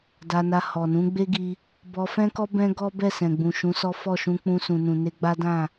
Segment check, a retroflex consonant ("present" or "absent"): absent